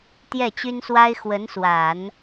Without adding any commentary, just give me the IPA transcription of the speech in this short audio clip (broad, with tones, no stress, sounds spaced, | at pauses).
t̪ j ɛ˥˩ t͡ɕ y˥ n s w a˥ ɪ̯ x w ə˧˥ n s w a˨˩˦ n